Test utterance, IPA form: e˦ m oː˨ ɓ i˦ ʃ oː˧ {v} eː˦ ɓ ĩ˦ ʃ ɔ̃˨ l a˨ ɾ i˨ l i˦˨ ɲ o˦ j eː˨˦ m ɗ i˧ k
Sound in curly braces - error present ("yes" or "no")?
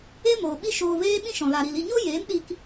no